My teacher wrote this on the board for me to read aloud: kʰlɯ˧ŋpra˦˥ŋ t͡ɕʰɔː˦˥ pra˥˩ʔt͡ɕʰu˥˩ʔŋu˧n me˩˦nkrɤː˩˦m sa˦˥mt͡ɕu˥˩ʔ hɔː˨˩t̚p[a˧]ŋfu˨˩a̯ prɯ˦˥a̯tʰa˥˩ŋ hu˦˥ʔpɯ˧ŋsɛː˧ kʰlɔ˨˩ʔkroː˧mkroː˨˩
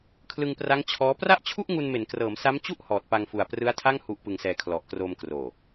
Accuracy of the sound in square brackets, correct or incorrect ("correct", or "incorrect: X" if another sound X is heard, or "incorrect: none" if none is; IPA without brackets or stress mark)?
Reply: correct